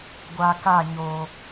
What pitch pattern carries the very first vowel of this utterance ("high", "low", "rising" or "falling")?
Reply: low